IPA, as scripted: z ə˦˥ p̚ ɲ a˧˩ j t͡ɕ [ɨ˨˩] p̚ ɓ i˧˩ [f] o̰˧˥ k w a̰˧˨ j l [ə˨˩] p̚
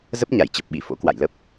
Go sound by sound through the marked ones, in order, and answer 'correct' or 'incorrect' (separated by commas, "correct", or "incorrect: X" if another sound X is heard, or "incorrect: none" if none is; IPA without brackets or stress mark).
incorrect: ə˨˩, correct, incorrect: ə˦˥